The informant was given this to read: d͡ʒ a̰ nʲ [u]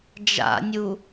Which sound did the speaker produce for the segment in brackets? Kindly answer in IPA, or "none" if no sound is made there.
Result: u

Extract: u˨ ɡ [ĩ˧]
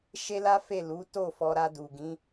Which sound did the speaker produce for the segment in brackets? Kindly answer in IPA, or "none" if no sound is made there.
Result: ĩ˨˦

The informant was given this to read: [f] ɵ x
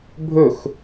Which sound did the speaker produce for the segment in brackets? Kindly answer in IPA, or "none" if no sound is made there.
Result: bʱ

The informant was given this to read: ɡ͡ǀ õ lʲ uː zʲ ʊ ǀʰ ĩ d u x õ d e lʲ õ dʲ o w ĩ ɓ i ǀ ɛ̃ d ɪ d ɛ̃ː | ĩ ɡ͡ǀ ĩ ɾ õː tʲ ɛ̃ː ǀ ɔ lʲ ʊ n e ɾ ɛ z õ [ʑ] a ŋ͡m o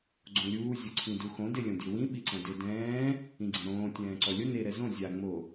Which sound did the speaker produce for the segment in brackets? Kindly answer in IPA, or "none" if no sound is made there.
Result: zʲ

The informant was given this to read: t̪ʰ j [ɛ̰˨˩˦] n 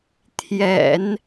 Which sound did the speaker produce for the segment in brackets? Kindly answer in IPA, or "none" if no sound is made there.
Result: ɛ̰˨˩˦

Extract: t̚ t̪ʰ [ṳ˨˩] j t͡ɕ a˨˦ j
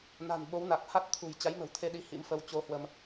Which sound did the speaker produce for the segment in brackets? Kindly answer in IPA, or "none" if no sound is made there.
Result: ṳ˨˩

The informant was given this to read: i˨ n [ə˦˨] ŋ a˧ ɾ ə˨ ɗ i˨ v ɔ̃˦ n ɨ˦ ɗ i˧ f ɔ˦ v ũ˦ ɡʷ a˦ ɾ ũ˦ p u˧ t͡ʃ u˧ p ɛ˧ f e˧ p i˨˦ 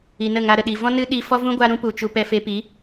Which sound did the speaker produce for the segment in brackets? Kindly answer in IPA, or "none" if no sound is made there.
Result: ə˦˨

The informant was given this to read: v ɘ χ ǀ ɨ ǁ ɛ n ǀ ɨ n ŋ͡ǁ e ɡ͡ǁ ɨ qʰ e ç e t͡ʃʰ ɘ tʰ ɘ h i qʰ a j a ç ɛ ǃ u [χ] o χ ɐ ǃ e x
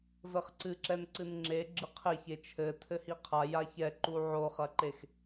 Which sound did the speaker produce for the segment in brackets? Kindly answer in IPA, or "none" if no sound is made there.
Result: ʕ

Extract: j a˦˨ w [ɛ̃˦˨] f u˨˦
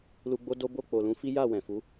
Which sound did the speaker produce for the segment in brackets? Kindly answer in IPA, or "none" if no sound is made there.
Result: ɛ̃˨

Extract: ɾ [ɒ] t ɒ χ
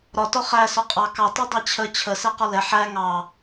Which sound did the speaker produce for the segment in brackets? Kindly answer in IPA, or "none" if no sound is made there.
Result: ɒ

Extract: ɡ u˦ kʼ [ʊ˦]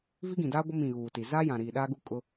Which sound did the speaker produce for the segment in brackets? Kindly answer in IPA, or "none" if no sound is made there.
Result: ʊ˦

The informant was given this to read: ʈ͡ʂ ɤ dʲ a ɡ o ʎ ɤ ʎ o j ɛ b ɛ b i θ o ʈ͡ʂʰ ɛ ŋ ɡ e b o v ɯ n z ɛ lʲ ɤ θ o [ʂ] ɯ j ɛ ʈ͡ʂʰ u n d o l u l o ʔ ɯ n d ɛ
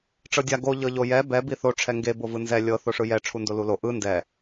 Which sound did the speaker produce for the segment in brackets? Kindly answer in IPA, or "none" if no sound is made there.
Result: ʂ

